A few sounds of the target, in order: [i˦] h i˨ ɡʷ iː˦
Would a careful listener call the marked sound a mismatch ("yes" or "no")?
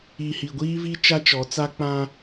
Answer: yes